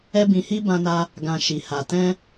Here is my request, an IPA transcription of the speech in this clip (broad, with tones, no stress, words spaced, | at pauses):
ɛ˦bĩ˧hi˦ bã˧na˧ | ɡã˧ʃi˨ha˨ tɛ̃˧